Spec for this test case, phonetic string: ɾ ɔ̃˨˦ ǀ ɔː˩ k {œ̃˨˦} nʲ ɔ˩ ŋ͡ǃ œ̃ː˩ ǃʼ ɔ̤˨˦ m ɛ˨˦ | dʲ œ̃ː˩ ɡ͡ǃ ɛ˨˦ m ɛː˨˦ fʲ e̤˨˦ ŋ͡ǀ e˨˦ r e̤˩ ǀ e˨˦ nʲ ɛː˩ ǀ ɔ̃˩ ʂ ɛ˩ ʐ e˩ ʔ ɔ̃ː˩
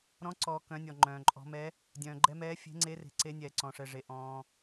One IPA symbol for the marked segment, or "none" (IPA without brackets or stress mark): œ̃˨˦